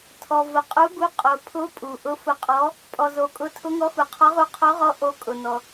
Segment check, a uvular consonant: present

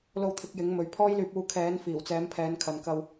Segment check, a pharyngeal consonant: absent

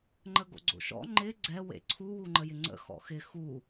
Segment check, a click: present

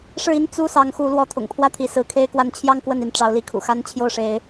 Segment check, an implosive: absent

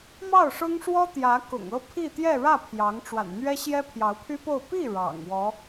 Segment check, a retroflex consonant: present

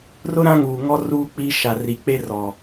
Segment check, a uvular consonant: absent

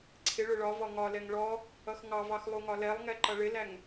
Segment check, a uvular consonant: absent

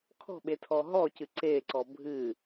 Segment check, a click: present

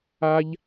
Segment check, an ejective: absent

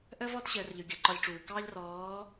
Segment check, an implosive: absent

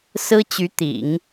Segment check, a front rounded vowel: present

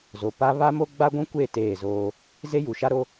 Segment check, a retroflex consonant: absent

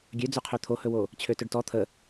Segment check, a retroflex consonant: present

